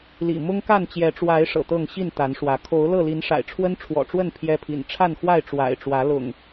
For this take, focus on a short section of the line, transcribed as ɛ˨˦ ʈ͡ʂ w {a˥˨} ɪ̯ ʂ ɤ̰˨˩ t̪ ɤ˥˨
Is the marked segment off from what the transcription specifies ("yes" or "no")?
yes